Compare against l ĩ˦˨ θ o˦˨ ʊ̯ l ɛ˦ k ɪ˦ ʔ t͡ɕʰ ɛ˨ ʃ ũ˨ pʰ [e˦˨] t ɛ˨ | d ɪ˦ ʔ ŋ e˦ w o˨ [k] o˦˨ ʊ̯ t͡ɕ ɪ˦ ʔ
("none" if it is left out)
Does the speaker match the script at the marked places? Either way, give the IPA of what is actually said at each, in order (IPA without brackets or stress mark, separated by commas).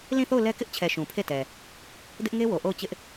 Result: e˦˨, ʔ